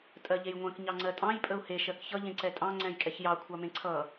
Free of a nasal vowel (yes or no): no